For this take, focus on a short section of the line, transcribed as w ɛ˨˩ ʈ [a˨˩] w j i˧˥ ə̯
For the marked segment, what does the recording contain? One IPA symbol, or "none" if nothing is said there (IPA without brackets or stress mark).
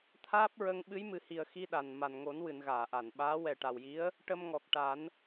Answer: a˨˩